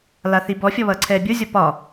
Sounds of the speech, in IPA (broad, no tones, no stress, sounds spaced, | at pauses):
l a θ i b ɔ fʲ ɔ β ʌː ǀʰ ɛː bʲ o zʲ ɔ p ɒ